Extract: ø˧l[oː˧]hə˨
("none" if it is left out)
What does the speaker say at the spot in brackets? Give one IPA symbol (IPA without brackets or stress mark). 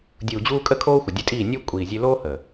oː˦